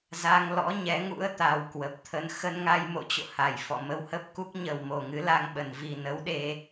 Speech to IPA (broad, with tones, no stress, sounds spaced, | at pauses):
z a˧ ŋ l ɔ̰˧˥ ɲ ɛ˨˦ ŋ ṵ˧˥ ə̯ t̪ a˧ w k w ə˨˩ p̚ t̪ʰ ə˧ n x ə˧ n ŋ a˧ j m o̰˧˨ t͡ɕ o̰˧˨ h a˧˩ j f ɔ̰˧˨ m ə˧ w h ə˦˥ p̚ k u˦˥ k̚ ɲ ə˨˩ w m o˨˩ ŋ ɨ˨˦ l a˧ ŋ ɓ ə˨˩ n v i˨˩ n ə˨˦ w ɗ e˧